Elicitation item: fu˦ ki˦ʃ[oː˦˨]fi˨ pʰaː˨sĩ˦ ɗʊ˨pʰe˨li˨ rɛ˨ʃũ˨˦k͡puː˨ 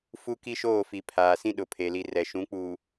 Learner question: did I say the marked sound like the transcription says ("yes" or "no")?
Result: yes